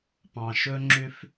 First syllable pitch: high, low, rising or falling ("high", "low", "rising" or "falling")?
low